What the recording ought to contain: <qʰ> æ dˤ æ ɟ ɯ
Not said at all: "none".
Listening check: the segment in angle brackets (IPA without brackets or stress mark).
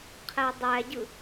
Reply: qʰ